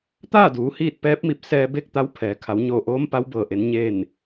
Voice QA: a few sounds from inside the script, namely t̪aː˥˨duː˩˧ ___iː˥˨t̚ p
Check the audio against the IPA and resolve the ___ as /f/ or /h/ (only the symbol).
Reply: h